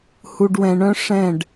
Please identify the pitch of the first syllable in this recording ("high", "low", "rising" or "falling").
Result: low